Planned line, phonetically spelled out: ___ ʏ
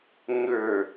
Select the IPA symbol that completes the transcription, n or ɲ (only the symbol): ɲ